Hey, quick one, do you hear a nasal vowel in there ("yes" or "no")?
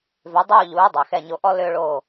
no